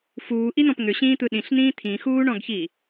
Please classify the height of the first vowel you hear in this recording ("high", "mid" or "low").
high